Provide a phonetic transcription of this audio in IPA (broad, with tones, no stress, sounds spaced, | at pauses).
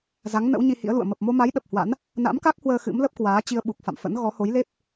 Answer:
z a˨˦ ŋ n ə̰˧˥ w ɲ i˧ h ḭ˧˥ ə̯ l ṵ˧˨ ə̯ m ə˨˩ p̚ m o˧ m a˨˦ j ɗ ə˨˩ p̚ h w a̰˧˥ n | n a̰˧˥ m k a˦˥ k̚ h w əː˧ x ɨ̰˧˥ m l ə˦˥ p̚ k w aː˨˦ t͡ɕ i˧ ə̯ ɓ u˨˩ k̚ f a̰˧˨ m f ə̰˧˥ n ɣ ɔ˨˦ h o˨˦ j l e˦˥ p̚